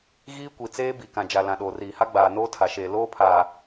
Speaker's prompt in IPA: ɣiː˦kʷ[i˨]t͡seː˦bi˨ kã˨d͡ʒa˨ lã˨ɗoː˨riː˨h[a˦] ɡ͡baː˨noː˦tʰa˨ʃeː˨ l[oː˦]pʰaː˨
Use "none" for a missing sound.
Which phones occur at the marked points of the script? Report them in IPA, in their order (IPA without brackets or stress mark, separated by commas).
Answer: i˨, a˦, oː˦